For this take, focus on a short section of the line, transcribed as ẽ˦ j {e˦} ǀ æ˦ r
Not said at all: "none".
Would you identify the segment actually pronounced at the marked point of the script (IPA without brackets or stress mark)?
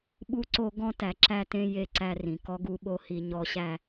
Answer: e˦